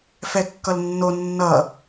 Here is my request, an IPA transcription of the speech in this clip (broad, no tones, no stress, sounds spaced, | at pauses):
f ɛ kː ʌ l nː o nː ʌ